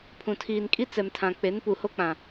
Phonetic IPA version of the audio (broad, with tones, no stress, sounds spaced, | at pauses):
pʰ ũ˨ tʰ iː˨ n kʼ i˦ t͡s ɛ˨ m tʰ ã˨ k͡p e˨˦ n p u˨ h o˦ k͡p ã˨